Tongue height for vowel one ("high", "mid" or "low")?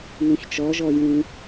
high